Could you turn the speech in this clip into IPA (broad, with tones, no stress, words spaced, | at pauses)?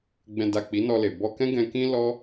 ɡ͡bɛ̃˨da˨ k͡pi˨˦nɔ˧le˨ bɔ˧kɛ̃˦ɡɛ̃˧kĩ˦ lɔ˦